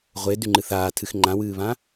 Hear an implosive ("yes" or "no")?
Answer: no